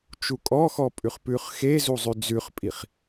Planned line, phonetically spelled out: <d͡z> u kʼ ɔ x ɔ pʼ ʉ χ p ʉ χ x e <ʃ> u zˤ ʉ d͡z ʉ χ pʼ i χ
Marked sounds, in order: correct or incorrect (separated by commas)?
incorrect, incorrect